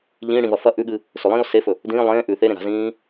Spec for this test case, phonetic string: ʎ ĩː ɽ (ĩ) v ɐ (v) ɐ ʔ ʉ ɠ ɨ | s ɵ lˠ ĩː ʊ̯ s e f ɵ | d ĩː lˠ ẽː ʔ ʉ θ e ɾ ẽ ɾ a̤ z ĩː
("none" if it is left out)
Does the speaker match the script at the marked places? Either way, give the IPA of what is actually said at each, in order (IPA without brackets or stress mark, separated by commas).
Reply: ĩ, f